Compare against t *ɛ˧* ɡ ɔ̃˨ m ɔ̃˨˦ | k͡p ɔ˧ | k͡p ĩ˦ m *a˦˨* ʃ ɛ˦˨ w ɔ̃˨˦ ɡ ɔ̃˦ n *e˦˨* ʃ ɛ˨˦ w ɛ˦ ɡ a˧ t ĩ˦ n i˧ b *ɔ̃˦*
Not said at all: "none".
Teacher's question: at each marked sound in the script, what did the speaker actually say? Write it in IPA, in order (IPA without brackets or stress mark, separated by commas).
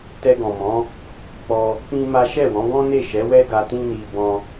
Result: ɛ˧, a˦, e˦˨, ɔ̃˦